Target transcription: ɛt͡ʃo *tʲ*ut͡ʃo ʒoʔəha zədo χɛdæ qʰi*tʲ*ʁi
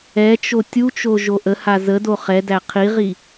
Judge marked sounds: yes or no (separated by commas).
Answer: yes, no